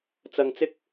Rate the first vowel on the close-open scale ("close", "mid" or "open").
open